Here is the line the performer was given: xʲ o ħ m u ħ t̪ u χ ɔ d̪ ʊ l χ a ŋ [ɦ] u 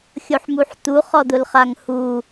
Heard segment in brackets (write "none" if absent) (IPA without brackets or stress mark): h